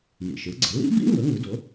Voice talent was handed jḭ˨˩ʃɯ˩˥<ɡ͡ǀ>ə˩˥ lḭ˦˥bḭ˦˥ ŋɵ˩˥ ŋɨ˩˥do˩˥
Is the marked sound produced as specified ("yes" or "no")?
yes